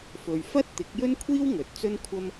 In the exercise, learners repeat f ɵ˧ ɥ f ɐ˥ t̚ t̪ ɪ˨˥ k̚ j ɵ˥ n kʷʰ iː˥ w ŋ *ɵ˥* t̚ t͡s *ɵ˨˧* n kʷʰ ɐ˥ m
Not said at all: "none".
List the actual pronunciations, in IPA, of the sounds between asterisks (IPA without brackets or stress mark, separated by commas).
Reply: ɵ˨˥, ɵ˥